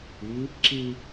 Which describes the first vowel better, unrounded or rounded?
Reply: unrounded